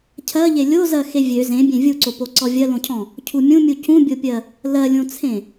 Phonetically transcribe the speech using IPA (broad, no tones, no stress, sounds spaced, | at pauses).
cʰ ɜ ʎ e lʲ o z ɜ x e vʲ ø z ẽ bʲ ẽ vʲ u ǀ o p o ǀ ɔ vʲ ɜ l õ cʰ ɔ̃ | cʰ u mʲ ũ mʲ u c ũ bʲ o pʲ ɜ | l ɜ lʲ õ t͡sʰ ẽ